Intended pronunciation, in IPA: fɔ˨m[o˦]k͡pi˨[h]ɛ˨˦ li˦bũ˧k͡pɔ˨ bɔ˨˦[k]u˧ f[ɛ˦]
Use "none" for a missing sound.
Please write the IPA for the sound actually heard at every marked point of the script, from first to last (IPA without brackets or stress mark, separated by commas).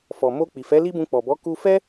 o˧, f, k, ɛ˦